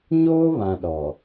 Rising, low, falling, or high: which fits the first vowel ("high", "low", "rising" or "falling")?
high